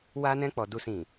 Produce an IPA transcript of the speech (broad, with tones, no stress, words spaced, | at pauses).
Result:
wa˧nɛ̃˧k͡pɔ˨ du˨sĩ˨